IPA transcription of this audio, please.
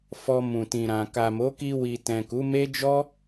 f ɔ˧ m ũ˨ t ĩ˨ ɾ ã˨ k a˨ m o˨˦ k i˧ w i˨ t ɛ̃˨ k u˨˦ m e˦ d͡ʒ ɔ˦

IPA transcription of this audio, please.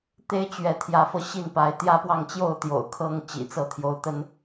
t̪ e˥˨ ɪ̯ t͡ɕ ɥ ɛ˨˦ t̪ʰ j ä˨˦ f ɤ˧ ɕ i˥˨ n p a˨˦ ɪ̯ t̪ j ä˦ p w ɑ˥˨ ŋ t͡ɕ j o˥˨ ʊ̯ t̪ j o̰˨˩ ʊ̯ kʰ ɤ˥˨ ŋ t͡ɕ ḭ˨˩ t͡s ɤ˥˨ t̪ʰ j o˨˦ ʊ̯ t̪ ə˦ n

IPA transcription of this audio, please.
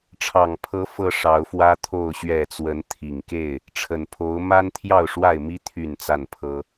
ʈ͡ʂʰ ɑ˨˩ ŋ pʰ ɤ˨˦ f ɤ˦ ʂ ɑ˨˦ ʊ̯ f w ä˦ t̪ʰ o˥˨ ʊ̯ ɕ ɥ ɛ˥˨ t͡s w ə˨˦ n t̪ʰ i˨˩ ŋ k e˥˨ ɪ̯ | ʈ͡ʂʰ ə˨˩ n pʰ o˨˦ ʊ̯ m a˦ n t̪ʰ j ɑ˥˨ ʊ̯ ʂ w a˥˨ ɪ̯ m i˦ t̪ʰ y˥˨ n t͡s a˥˨ n pʰ ɤ˦

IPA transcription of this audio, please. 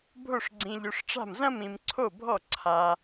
bʱ o˥˩ ʂ ɡ͡ǀ ĩ˧ ʎ o˧ ʂ ʈ͡ʂ a̤˥˩ m z ɐ̃˥ m ĩ˧ m ǀʰ o˥˩ bʱ ɔ˥˩ ǀʰ a˧

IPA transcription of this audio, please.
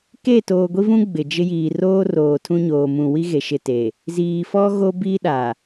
k e˦˨ t oː˨ ɡʷ i˦ v ũ˦ ɡ͡b ɪ˨ d͡ʒ ɪ˦ j iː˨ r oː˦ r oː˨ tʰ ũ˦ ɲ oː˨ m ũ˨ w i˦ ɣ e˨ ʃ ɪ˨ t e˨ | z iː˨ f ɔ˦ ɣ o˦ b i˦ ɗ a˨

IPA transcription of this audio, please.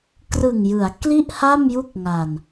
k r ɯ˨˩ ŋ j ɯ˩˦ a̯ k l i˥˩ ʔ h a˥˩ m j u˥˩ k̚ ŋ a˨˩ n

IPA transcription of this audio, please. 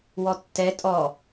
w ɔ tː ɛ tʼ ɔ

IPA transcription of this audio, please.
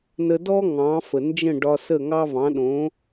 n ə˧ d ɔ˥ ŋ ɑ̃˩˥ f ə˩ n d͡ʒ ə̃˥˩ ɖ ɒ˧ s ə˥˩ ŋ ɑ˥ v ɑ̃˩˥ ɗ õ˩˥

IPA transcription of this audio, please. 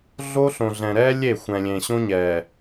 ɮ o˦ ɬ õ˨ ɮ ɛ̃˨ ɾ ɛ˦ lʲ e˦˨ xʷ ɛ̃˨ lʲ ẽ˨ ɕ õ˦ ɲ ɛ˨

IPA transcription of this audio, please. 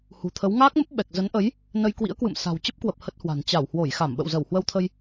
h ṳ˨˩ t̪ʰ ə˨˦ w ŋ aː˦˥ k̚ m ə˦˥ p̚ ɓ ɛ˨˩ k̚ z ə˨˦ n ʔ ə˨˦ j | n ə˧ j k w ḭ˧˥ ə̯ k w ɨ̰˧˨ m s a̤˨˩ w t͡ɕ ə˦˥ p̚ k w ə˨˩ p̚ h ə˦˥ t̚ h w a̤˨˩ n t͡ɕ a˧˩ w h w o˧˩ j x a˧˩ m ɓ ə̰˧˨ w z ə˧˩ w h w ə˧ w t̪ʰ ə˧ j

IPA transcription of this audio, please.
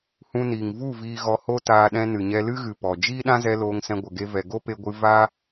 h ũ˧ n iː˨ ŋ v u˦˨ v iː˧ ɣ ɔ˧ h o˦ t aː˧ ɗ ɛ̃˧ n ɨ˨ ɲ ɛ˧ l ɨ˦ ɣ ɨ˨ p ɔ˨ d͡ʒ iː˦ ɗ ã˦ z ɛ˧ l oː˧ ŋ s ɛ̃˧ ɡʷ ə˨ ɡ e˧ v ɛ˨ ɡ o˦ p e˧ ɡʷ ɨ˧ v a˦

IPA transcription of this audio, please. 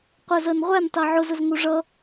qʷ ɜ z ɜ n ʁʷ æ n tˤ ɜ ʕ ʊ z ə z ŋ u ʐ ʌ

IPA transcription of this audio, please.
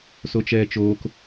s o t͡ʃ ɛː t͡ʃ oː k

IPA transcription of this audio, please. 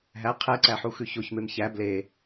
ɦ æ qʰ ɛ ǀ æ ħ u x ʉ ç o ç m e m ç æ b l e

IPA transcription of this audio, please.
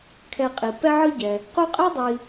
kʰ ɛ˨ qʼ i˩ p ɛ˦ ʕ ɯ˦ ɟ ɛ˩ | q u˦ qʼ ɛ˥ dˤ i˨

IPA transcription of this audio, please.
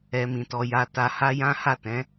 ɛ˧ m ĩ˨ t ɔ˧ j a˧ t a˧ h a˦ j ã˦ h a˦˨ t ɛ̃˨˦

